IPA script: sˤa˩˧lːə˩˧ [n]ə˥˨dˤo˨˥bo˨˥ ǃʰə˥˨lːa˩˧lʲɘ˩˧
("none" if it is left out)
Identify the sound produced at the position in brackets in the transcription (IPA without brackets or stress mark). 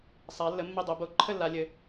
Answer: mː